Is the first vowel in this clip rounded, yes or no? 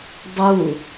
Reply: yes